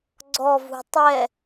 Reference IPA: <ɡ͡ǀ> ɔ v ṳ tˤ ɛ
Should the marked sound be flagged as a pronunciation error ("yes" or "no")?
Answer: no